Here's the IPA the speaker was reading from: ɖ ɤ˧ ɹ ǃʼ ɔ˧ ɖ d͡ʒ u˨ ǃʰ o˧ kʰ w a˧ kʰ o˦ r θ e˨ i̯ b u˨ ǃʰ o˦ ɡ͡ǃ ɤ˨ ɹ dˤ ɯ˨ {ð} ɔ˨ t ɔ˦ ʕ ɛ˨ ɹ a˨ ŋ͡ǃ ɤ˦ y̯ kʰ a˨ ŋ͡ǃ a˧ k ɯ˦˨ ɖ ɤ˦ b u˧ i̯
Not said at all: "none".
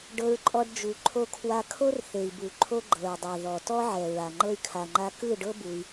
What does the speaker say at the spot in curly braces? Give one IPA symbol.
ð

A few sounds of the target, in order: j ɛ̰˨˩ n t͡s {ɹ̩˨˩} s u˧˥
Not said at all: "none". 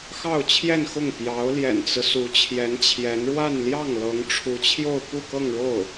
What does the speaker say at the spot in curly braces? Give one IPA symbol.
ɹ̩˦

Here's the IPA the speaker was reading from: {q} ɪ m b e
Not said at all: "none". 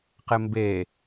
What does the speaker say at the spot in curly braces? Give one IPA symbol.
q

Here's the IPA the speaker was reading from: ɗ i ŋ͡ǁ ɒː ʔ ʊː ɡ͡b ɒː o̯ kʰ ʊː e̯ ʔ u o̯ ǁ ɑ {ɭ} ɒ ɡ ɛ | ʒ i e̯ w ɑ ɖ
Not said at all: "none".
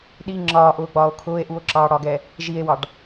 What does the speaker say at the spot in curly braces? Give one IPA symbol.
ɽ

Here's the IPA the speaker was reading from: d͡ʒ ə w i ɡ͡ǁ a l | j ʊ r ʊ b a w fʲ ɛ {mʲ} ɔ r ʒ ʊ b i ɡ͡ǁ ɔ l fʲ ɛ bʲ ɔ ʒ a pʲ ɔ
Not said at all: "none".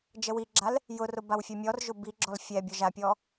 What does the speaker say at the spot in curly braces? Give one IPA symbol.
mʲ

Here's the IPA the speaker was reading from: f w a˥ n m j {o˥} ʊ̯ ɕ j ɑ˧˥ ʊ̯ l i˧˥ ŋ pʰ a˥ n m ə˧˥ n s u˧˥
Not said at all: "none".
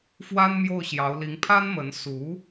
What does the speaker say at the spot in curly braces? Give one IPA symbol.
o˥˩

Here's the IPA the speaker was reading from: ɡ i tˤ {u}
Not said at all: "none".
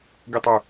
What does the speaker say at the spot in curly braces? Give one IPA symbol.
ø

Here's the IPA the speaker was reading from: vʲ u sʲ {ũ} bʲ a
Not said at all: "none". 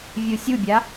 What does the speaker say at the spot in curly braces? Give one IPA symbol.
u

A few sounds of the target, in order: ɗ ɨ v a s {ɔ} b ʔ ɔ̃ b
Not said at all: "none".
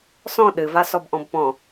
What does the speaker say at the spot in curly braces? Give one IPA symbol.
ɔ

